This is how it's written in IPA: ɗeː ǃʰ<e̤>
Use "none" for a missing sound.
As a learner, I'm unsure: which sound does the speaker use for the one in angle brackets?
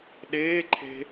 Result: e̤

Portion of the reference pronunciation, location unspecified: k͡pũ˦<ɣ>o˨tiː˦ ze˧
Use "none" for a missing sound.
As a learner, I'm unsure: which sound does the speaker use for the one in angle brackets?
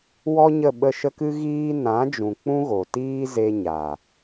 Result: ɣ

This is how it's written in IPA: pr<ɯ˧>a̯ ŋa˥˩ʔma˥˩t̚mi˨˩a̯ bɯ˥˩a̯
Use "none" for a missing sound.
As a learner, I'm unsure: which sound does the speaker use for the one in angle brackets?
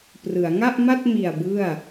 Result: ɯ˩˦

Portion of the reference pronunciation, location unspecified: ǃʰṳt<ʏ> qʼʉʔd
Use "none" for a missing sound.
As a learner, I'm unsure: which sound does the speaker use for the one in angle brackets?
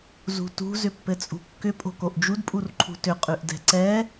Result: ʏ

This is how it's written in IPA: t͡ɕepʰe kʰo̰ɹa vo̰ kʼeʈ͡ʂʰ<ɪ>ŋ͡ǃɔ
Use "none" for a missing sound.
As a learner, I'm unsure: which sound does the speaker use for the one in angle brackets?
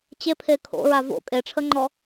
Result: ə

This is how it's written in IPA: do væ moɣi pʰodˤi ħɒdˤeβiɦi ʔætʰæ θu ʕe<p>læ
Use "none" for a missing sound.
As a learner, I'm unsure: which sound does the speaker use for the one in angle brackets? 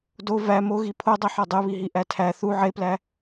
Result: p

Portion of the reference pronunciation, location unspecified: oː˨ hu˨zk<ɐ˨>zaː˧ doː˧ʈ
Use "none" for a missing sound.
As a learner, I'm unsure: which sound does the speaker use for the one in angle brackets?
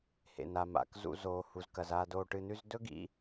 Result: ɐ˨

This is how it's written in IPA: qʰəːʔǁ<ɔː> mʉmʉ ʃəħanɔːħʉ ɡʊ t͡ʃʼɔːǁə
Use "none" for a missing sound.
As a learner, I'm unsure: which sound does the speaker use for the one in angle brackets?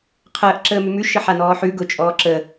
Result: əː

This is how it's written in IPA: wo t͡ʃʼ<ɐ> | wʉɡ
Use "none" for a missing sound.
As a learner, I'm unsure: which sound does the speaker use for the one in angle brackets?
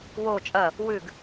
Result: ɐ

